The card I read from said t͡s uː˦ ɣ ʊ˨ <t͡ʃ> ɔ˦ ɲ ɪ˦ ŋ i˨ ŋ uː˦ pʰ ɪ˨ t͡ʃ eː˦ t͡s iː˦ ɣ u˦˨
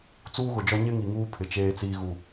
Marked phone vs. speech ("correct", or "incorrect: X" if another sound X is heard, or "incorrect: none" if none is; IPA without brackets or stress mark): incorrect: d͡ʒ